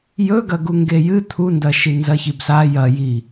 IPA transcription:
jɵɡɐɡu ŋɡejɨ t̪ʰundɐʃi nzɐçibsa jɐji

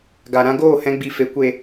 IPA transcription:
ɡa˨ɾã˧ɡoː˦˨hɛ̃˧ ɡ͡bi˨fe˨ kʷe˨

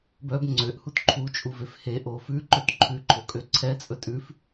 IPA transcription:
bœb ŋ͡ǀøʔhut ǃʰut͡ʃʼuvef heʔo fʉǃøt ǃʰʉǃʰokʼø ǀʰɛt͡sʼɵ tʼʉf

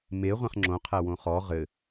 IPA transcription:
me ʁʷẽχŋ͡ǁõ qʰæwõχɔ ʁɘ

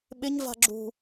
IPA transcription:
ɓɪɲva̤ ɡ͡ǁṳ

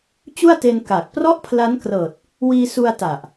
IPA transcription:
t͡ɕu˥˩a̯te˧n ka˨˩k̚ prɔ˥˩ʔpʰla˦˥nkrɤː˨˩t̚ | wiː˧su˧a̯ ta˨˩ʔ

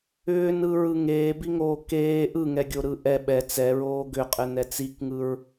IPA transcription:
ʏːnɯɹɯ ŋeːbiŋoː keː ʔɯŋɛɡʲoɾɯ ʔɛ ɓɛ t͡sɛɹoː ɡʏqʼɘnɛ t͡sikŋɯɹ

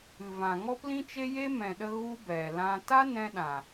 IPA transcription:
ɨ˨vã˨ ŋɔ˦plĩ˦t͡ʃe˦ je˦mɛ̃˨ɗə˧ ɣu˧ bɛ˨lã˦ ta˦nɛ̃˧ɗã˨

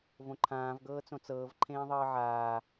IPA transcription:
võǃʰãːv ɡɤːt͡sõt͡sɤːv ǃʰẽːðˤɤːʕaː

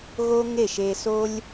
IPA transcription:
ɣo˥ŋe˥˩ʃe˧so˥lʲ

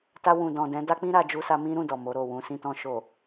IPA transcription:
ta˧ wũ˨dɔ̃˨dɛ̃˨˦ da˦k͡pĩ˦ɾa˧ d͡ʒu˧sa˧mĩ˦ɾũ˦˨ dɔ˨mo˨˦ɾo˦˨ wũ˨sĩ˧ tɔ̃˨ʃo˨

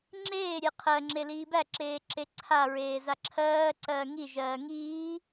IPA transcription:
ŋ͡ǁeːɾʲe qʰɜŋ͡ǁe liːbæǁeː ǁeǀʰaɹeː zaǁʰɜːǀɜː ŋiʒɜː ŋiː

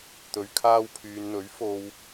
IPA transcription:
t̪ɵ˨ɥkʰaː˧wpʰyː˨nn̪ɵ˨˥ɥ fo˧w

